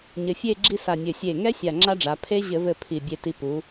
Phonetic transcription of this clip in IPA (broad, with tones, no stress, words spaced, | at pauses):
ɲɘ˧fʲe˥˧ɡ͡ǁi˥˧ sa˧˩nʲɘ˧˩ sʲe˧˩ŋɛ˦˥ sʲa˧˩ŋ͡ǁa˦˥ɖ͡ʐa˩˧ pʰe˦˥ʑɘ˧˩˧vɘ˧˩ pʰi˧˩bʲe˧ti˧pu˩˧